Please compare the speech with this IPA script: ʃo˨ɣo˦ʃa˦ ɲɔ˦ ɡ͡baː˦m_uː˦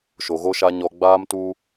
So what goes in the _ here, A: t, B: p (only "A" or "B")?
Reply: A